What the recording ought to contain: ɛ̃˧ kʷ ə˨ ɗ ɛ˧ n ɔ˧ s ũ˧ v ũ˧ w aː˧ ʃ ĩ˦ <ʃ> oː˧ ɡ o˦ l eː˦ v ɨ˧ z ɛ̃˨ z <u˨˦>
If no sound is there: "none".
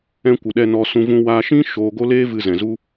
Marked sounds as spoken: ʃ, u˦

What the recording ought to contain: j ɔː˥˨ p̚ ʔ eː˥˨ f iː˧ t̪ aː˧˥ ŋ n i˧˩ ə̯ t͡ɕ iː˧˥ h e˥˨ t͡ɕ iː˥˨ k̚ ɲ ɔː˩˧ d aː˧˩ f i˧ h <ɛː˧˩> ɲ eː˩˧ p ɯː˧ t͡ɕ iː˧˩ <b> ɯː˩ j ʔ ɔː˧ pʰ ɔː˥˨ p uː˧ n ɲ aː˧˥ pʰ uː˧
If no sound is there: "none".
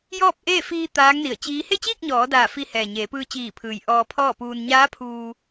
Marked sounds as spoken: ɛː˩, pʰ

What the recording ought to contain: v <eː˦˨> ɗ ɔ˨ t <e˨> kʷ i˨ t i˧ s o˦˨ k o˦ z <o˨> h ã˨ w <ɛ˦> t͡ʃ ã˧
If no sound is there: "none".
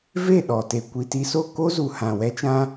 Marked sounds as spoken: e˦˨, e˨, u˨, ɛ˧

